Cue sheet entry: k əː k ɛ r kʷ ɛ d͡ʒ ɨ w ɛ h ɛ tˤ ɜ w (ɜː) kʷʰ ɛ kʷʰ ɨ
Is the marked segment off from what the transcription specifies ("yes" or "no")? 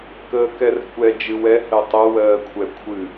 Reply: no